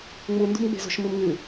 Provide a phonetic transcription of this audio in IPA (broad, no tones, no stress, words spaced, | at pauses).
ŋ͡mundṳmɡ͡be̤zo̤ʃ mɨmŋɨ